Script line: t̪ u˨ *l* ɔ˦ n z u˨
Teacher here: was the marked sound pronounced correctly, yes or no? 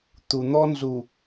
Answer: no